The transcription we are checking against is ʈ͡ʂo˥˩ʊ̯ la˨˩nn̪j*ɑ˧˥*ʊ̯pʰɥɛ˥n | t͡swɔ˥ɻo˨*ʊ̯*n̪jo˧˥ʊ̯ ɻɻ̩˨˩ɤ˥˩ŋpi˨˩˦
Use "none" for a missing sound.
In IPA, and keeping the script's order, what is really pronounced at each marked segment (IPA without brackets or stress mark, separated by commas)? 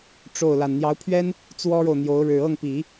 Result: ɑ˧˥, ʊ̯